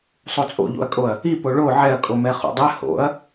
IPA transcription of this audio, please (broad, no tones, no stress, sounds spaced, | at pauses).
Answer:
sˤ o t͡sʼ o̰ ʎ o̰ ɐ̯ kʼ o ɐ̯ | i p o ɭ o ʕ ɛ ɐ̯ kʼ o m ɛ χ o̰ dˤ ɛ h o̰ ɐ̯